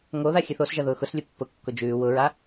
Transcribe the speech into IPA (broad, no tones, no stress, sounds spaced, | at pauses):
ŋ o ð a xʲ ɘ θ o s ʒ ɐ ð ʊː x ʊ s lʲ ʊ pː ʊ kː ʊ d͡ʒ ʉː w ʊ ɹ a